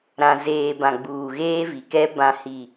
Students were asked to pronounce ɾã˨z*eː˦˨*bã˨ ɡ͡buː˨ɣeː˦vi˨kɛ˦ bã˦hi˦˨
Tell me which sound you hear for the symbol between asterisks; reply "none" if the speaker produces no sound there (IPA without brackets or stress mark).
eː˨